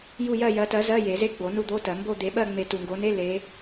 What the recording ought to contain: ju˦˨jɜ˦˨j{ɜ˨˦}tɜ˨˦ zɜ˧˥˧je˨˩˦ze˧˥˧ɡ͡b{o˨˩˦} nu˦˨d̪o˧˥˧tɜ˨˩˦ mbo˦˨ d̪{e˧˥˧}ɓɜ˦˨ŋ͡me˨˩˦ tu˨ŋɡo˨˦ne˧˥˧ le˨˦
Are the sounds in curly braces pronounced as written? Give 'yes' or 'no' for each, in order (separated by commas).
yes, yes, no